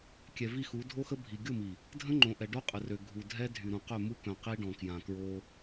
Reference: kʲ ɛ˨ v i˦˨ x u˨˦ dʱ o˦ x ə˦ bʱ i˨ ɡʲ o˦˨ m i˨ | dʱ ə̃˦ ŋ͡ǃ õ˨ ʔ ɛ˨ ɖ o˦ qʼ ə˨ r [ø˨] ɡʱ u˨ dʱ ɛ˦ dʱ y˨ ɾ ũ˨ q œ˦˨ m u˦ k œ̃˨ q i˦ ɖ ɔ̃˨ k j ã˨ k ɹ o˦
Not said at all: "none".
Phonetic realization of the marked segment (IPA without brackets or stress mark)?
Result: ø˨